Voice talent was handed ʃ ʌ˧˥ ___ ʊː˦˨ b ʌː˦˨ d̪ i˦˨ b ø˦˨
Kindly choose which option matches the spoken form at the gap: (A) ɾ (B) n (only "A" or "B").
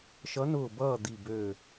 B